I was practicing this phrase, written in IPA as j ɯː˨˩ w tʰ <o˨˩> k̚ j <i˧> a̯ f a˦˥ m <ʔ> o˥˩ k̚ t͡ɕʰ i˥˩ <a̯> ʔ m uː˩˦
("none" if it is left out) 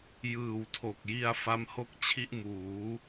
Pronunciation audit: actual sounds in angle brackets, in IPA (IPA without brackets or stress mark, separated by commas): o˨˩, i˧, h, none